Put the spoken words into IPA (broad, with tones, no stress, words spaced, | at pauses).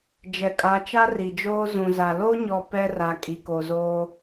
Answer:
d͡ʒɛ˨kʼa˨˦t͡ʃa˦ ri˨d͡ʒoː˦ zũ˨za˨ lo˦ɲɔ˨ pɛ˦ra˨ kʼi˨ko˨zoː˦